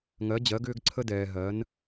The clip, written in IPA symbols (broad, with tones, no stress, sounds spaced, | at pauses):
ŋ ɜ˩˧ d͡ʑ ɜ˩˧ ɡ ʏː˧ ɡ ǀʰ ə˧ d ɛː˩ ɦ ɜ˩˧ n